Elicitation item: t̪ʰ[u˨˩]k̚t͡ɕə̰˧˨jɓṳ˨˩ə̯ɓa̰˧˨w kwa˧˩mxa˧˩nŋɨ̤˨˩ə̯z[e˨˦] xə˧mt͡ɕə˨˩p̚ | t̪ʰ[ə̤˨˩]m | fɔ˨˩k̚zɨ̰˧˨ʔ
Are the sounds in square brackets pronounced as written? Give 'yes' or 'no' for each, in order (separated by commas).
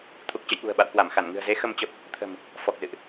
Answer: yes, yes, yes